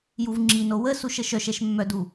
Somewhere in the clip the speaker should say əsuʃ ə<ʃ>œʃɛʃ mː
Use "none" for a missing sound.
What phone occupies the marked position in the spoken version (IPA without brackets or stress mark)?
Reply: ʃ